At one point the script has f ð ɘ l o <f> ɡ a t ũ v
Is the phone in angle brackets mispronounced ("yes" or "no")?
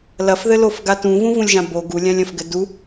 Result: no